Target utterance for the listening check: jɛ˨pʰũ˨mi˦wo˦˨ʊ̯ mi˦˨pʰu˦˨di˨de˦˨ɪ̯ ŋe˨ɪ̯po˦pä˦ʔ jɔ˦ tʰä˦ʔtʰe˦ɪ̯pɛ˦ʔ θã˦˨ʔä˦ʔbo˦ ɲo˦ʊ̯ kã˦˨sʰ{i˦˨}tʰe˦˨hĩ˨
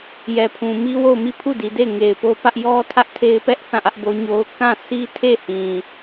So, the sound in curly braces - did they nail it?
no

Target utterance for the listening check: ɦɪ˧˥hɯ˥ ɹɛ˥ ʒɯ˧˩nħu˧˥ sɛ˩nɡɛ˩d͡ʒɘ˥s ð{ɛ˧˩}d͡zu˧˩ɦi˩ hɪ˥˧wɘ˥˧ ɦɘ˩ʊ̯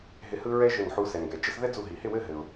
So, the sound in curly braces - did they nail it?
no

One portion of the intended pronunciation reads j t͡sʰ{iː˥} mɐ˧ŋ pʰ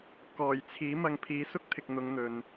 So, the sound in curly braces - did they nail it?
no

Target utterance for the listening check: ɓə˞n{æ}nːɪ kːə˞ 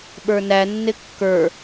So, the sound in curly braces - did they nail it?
yes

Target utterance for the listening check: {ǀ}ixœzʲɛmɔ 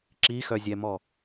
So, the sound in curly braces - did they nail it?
no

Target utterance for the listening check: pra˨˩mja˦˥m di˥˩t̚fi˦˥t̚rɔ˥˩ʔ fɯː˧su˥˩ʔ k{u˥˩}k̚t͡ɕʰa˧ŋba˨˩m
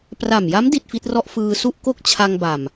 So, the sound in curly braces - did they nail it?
no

